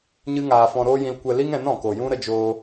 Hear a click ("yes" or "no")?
no